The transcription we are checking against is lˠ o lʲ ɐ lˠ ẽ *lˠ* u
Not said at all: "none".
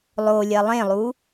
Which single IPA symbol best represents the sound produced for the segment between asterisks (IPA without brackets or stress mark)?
lˠ